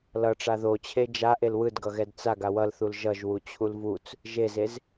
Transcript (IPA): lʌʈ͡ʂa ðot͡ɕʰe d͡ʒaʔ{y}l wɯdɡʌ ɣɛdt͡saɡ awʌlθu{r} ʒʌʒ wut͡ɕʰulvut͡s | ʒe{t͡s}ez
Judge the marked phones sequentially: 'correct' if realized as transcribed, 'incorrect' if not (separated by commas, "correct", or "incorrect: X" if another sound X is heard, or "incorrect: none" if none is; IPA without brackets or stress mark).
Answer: incorrect: e, incorrect: l, incorrect: z